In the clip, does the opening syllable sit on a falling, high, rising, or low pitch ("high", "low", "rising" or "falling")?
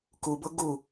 low